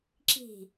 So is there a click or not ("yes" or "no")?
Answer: yes